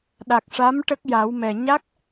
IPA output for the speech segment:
ɗ a˨˩ k̚ ʂ a˧˥ m ʈ ə˦˥ k̚ j a˨˩˦ w m ɛ˨˩ ɲ a˦˥ k̚

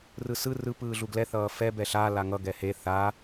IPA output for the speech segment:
r ɯ s ɯ r ɯ p ɯː ɮ u ɡ l ɛ θ ʌː f ɛ b ɛ ɬ a l a ŋ ʌ ɡ ɛ h e θ a

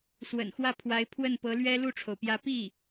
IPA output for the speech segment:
s w ə̰˨˩ n x w ä˥˩ pʰ w a˧˥ ɪ̯ pʰ w ə˥˩ n p ɤ˧˥ l ɥ ɛ˥ l u˥˩ ʈ͡ʂʰ o˩ ʊ̯ p j ä˧˥ p i˥˩

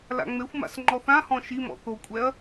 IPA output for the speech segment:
l a̰ ŋ͡m e xʷ m a̰ s ŋ͡ǃ ɔ θ ã h ɔ̃ ʃ i m ɔ̰ θ o kʷʼ ɛ ɐ̯

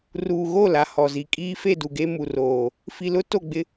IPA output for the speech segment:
r uː˨ ɣ o˦˨ l a˨ h ɔ˨ z i˨ kʼ iː˦ f e˦˨ d u˨ ɡ e˦ m u˨ r oː˨ | f i˨ l ʊ˦ t o˦˨ ɡ͡b ɪ˦

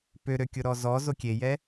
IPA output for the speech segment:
p ø ɾ ø kʲ ʊ ɾ ɔ z ɔ z o kʲ e j ɛ

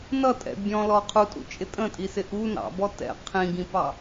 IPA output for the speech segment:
n ʌ tʼ ɛ̰ bʲ ɔ̃ l ɔ qʰ u tʼ ṵ t͡ʃʼ ɪ tʼ ə̃ tʼ i s ɪ ʔ u n ɑ̰ b ɔ t ɛ̰ qʰ ĩ ɡ ĩ p ɑ

